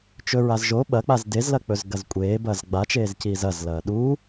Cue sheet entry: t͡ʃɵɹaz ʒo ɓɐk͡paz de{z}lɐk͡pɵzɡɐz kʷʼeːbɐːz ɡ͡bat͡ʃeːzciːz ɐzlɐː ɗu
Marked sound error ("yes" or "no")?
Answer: no